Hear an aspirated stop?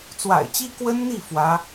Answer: no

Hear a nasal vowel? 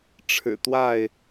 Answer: no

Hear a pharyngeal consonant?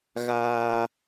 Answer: no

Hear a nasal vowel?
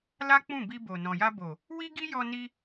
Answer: yes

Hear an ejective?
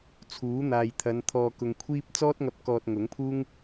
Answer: no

